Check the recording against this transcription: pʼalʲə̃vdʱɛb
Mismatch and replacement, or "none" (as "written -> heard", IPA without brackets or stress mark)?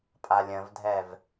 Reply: b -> v